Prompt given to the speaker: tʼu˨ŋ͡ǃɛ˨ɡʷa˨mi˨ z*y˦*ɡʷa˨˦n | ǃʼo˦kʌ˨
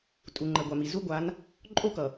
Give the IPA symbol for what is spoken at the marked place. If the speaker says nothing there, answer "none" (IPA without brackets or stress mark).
u˦